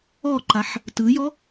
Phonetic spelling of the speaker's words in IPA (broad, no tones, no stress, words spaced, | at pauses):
ɔǃaħ | tɯjɔ